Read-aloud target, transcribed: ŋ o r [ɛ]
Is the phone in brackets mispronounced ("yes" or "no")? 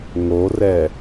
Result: no